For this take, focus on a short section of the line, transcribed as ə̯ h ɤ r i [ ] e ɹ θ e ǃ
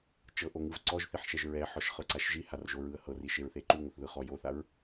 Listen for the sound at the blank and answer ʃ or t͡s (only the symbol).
ʃ